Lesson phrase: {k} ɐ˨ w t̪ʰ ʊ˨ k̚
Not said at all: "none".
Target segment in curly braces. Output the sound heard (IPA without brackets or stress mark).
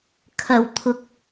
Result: kʰ